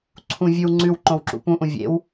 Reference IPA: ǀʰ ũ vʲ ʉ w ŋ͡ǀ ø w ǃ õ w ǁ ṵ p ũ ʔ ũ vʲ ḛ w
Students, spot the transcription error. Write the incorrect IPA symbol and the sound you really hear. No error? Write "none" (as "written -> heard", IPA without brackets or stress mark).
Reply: ø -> ʉ